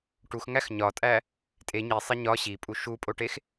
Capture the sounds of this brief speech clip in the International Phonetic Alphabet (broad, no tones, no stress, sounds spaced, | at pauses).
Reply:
ʈ u x ŋ æ x ɲ ɒ tʼ æ | tʼ e ɲ i sˤ i ɲ ɒ ɕ i pʼ u ʃ u pʼ o ʈ e x